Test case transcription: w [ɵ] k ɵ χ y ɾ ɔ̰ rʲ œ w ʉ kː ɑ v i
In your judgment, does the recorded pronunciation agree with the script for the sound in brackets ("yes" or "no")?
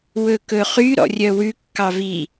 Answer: yes